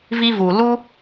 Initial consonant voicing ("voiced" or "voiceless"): voiced